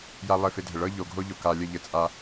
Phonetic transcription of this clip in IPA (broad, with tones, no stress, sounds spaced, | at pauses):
j a˦ lˠ ɘ˦˨ f e˦ dʱ ə˨ ɭ ɤ˦ ʎ o˨ ɡʱ o˦ ʎ o˨ k a˨ lʲ ə˦˨ ʎ ɘ˨ t͡sʼ a˨